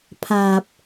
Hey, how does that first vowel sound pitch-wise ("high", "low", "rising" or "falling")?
low